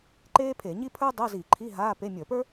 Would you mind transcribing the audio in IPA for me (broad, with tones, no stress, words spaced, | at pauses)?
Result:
ǃeː˥pʰe˧˩˧ɲi˥ pʰə˞˥ dˤɤ˧˥˧zi˧˩˧ǃʰi˧˥˧ ɦaː˧˥˧ pe˧˥˧ mʲə˞˧˩˧pə˞˥